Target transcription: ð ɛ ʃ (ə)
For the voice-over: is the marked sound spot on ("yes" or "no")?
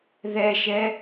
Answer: no